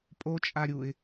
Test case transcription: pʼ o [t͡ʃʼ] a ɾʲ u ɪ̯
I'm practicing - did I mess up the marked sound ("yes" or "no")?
no